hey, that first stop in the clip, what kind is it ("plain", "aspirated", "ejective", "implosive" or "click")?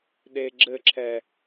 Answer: implosive